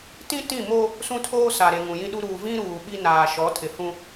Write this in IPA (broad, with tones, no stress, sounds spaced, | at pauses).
t ĩ˦ t ĩ˦˨ m o˦ | s ũ˦ tʰ oː˦ s a˨ ɾ e˨ ŋ ũ˨ j ĩ˦ ɗ u˦ ɾ uː˨ v ĩ˦ ɾ uː˨ ɓ i˦ n aː˨ ʃ ɔ˨˦ tʰ ɪ˨ h ũ˦